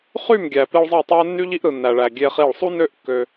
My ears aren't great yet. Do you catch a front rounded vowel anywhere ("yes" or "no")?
yes